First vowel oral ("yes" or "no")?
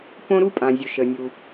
no